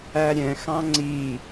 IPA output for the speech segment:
æ ɾʲ ɛ̃ x ɑ̃ ŋ͡ǀ i

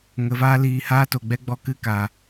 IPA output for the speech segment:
ŋ ə˨˦ v aː˦ l iː˧ h aː˦ t o˨ ɡ͡b ɛ˦ ɡ͡b ɔ˧ k ɨ˦˨ k a˨

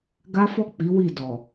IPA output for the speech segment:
ɡ a˦ f ɔ˦˨ k͡p i˨˦ w i˦˨ d ɔ˨

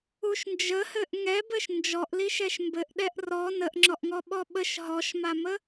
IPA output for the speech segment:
u ʃ n d͡ʒ ə h ɘ ʔ ŋ ɛ b ɘ ʃ n d͡ʒ ɔ ʔ l i ʃ ɛ ʃ m b ɘ ʔ ɗ ɛ ʔ r ɔ n ə ʔ ŋ͡ǁ ɔ ʔ ŋ ɔ ɓ ɔ ɓ ə ʃ ɦ ɔ ʃ m a m ə

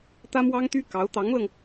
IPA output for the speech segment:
t̪ ä˥ m w ɑ˥ ŋ t̪ y˥ k ɑ˧˥ ʊ̯ t̪ ɑ˧˥ ŋ l ɤ˧ ŋ

